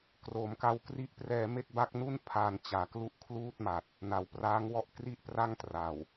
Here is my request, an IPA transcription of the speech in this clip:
k r o˨˩ m k a˧ w k r i˦˥ ʔ p r ɛː˧ m e˥˩ k̚ b a˦˥ k̚ n u˥˩ n pʰ aː˧ n t͡ɕ aː˨˩ k l u˥˩ ʔ kʰ l uː˥˩ t̚ m a˨˩ t̚ | n a˨˩ w p r aː˦˥ ŋ w ɔ˦˥ ʔ k r i˥˩ ʔ p r a˥˩ ŋ t r a˨˩ w

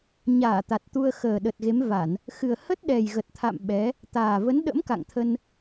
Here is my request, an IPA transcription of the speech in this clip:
ɲ aː˧˩ t̪ a˨˩ t̚ t̪ u˧ ə̯ x əː˨˩ ɗ ə˨˩ t̚ ɣ e˨˦ m v a˧˩˨ n | x ɨ˨˩ ə̯ h ə˦˥ t̚ ɗ ɛ˨˩ j ɣ ə˨˩ t̚ t̪ʰ a̰˧˨ m ɓ ɛ˨˦ | t̪ aː˨˩ v ə˨˦ n ɗ ə̰˧˥ m k a̰˧˨ ŋ t̪ʰ ə˧ n

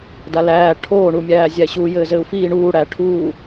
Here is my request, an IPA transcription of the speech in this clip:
d a l æː ʈʰ oː ɳ u mʲ æː zʲ æ ɕ u j ɘː z ɘː u̯ f iː ɳ uː ɽ æ ʈʰ uː

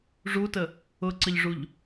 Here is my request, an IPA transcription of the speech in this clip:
ʐ u t ə | ʊ ǀ ə ʎ ʐ u ʎ

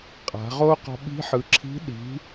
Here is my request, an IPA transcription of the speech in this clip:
qʼ a̤˩˧ ʁ o˥ q ɔ̤˧ ɓ i̤˧˥ ħ ɯ˩˧ ǁʰ i̤˧˥ ɗ i̤˩˧

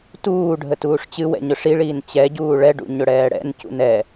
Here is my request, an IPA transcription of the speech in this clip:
t uː ɖʱ ə t uː ʂ t͡ɕ ɨ w ɛ̰ ɲ ʊ ʂ i ɭ iː n t͡ɕ ɛ ɟ uː ɭ ɛ ɖ ṵ ɲ ʊ ɽ ɛː ɽ ɛ̰ n c ṵ n ɛ

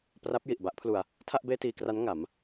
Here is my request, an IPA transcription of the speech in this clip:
p r a˦˥ p̚ j i˨˩ ʔ b a˦˥ ʔ pʰ l u˧ a̯ | tʰ a˥˩ ʔ b eː˥˩ t iː˧ k r a˦˥ n ŋ a˩˦ m

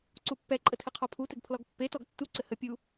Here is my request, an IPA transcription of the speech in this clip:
ǀ u pː ɛ ǃʼ ə tʰ ɘ qʰ ɔ pʰ u t ɘ ɡ pʰ l ɔ ɡ pː e t ɔ ɡ tː u ǀ ɘ h ə pʲ u

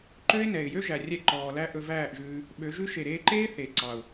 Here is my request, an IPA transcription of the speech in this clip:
ǃ ø˦ ɪ̯ n ɛ˨ ɪ̯ j ø˦ ʒ æ˨ rʲ ɛ˧ ǃ ɔː˨ l æ˦ ʔ ɵ˧ v æː˦˨ ʔ ʒ ʉː˧ | ɓ ø˨˦ ʒ ʉ˦ ʃ e˨ ɾ eː˧ ǃ eː˦ θ e˨ ǀ ɑ˨ ʊ̯

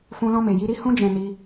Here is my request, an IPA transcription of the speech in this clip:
f ũ˦ l ɔ̃˦ m e˧ j i˦ ɾ i˦ h ũ˦ d͡ʒ ɛ̃˧ n i˧

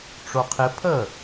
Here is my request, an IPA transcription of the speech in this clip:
ʈ͡ʂ o qʰ ɪ pʰ ə

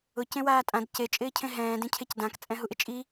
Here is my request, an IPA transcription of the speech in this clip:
ʊ c ẽ w aː tʼ ã d c e t͡ʃʼ ɪː cʰ ẽ ɦ ɛ̃ː d ẽ cʰ e c d ã k t͡sʼ ɛ̃ ɦ u ʔ ɪ t͡ʃʼ i

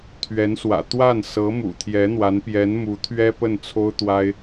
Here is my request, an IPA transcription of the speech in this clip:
t̪ʰ ɥ ɛ˧˥ n s w ä̰˨˩ t̪ w a˥˩ n s ɤ˧˥ m ṵ˨˩ t̪ʰ j ɛ˧˥ n̪ w a˧˥ n p j ɛ˧˥ n m u˧˥ t̪ʰ ɥ ɛ˥ p ə˥˩ n t͡sʰ o˥ ʊ̯ t̪ w a˥ ɪ̯

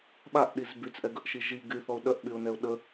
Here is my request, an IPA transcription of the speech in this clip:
ɓ a ʔ ɗ i z b y t͡s ʔ ɛ ɡ ə ʔ ʃ i ʒ i ɡ y θ ɔ ʊ̯ ɗ œ ʔ ɓ y ʊ̯ n ɛ ʊ̯ ɗ ə

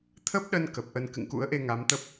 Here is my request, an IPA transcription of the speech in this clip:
t̪ʰ ə˦˥ p̚ ɗ ə˧ n k ə˨˩ p̚ ʔ ə˧ n k ɨ̰˧˨ ŋ k ṵ˧˥ ə̯ ʔ e˧ ŋ a˨˦ m t̪ ə˦˥ p̚

